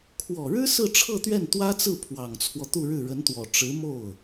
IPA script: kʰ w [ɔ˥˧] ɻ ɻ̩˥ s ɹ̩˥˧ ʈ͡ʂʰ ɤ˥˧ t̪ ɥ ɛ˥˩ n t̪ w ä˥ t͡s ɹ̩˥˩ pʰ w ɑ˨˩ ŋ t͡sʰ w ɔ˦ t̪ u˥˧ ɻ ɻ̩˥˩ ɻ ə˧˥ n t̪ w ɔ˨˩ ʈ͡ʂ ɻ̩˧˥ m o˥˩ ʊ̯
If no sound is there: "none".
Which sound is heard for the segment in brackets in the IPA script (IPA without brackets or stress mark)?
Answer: ɔ˨˩